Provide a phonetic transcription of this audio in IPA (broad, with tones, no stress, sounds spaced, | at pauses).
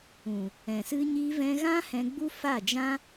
ũ˨ | ɛ̃˨ s ɨ˦ ɲ i˧ v ɛ̃˧ ɣ ã˦ h ɛ̃˧ ɡ͡b u˦ f a˦˨ d͡ʒ ã˦